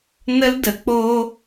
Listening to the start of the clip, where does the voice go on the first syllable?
high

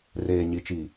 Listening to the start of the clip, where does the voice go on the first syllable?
low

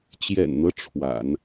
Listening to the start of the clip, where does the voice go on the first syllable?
low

